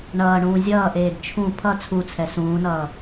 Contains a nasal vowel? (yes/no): yes